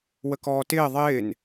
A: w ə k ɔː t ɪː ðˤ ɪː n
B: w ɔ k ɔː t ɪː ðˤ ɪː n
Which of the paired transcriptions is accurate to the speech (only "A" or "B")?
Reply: A